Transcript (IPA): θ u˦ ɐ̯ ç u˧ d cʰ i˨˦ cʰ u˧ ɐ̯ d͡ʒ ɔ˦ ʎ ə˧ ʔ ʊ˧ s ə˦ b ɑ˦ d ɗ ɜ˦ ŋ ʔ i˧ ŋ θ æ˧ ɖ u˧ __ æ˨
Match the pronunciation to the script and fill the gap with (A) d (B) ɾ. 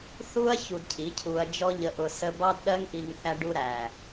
B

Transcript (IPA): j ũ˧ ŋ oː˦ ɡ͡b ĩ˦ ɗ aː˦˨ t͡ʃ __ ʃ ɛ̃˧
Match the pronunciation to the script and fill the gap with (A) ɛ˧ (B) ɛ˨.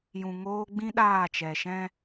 B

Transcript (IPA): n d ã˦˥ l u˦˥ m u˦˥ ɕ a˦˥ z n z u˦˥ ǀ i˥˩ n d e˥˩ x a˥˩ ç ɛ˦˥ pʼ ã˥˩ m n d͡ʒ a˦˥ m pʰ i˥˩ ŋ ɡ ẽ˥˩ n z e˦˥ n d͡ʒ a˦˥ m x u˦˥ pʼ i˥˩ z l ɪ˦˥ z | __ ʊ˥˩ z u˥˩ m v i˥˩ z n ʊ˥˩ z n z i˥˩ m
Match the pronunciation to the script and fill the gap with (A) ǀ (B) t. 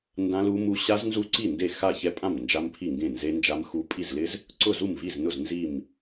A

